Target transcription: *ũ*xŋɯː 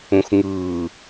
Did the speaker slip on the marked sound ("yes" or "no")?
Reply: no